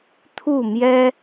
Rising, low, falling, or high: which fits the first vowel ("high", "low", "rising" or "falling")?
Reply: falling